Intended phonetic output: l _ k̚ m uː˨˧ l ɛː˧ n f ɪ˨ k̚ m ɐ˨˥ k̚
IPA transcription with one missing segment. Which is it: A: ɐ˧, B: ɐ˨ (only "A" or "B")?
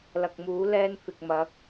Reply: B